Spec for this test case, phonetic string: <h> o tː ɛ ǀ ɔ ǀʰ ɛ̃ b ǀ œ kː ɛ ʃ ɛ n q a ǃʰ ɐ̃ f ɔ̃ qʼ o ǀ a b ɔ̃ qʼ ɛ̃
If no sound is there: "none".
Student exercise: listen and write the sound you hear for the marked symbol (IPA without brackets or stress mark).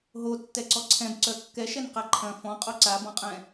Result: ɦ